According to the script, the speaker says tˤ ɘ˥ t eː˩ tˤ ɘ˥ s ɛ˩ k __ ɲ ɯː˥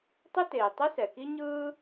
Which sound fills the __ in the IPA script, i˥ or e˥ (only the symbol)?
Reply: i˥